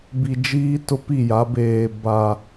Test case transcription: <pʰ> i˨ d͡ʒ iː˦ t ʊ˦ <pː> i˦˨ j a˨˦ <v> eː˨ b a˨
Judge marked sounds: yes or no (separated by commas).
no, no, no